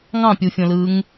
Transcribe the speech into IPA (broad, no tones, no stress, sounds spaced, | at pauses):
ŋ ɑ̃ pʲ u fʲ õ l ɯː ŋ